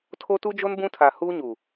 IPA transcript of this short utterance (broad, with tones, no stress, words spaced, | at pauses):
tʰo˦tu˦d͡ʒo˦n bũ˦tʰa˨ huː˦ɲu˨